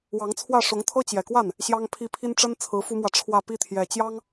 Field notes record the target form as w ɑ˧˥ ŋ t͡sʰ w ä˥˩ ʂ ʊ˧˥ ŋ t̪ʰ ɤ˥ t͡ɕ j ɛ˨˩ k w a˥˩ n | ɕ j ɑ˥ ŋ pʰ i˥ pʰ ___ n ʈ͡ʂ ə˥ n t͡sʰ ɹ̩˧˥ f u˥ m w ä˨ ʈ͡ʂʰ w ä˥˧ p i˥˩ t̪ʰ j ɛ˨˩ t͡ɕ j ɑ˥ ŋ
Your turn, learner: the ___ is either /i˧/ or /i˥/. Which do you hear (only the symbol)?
i˥